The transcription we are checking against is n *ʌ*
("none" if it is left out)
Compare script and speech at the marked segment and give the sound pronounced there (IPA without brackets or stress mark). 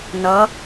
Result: ʌ